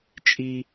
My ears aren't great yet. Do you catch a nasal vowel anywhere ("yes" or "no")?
no